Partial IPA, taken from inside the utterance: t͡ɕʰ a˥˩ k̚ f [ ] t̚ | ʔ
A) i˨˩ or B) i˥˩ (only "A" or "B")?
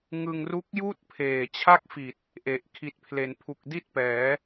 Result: A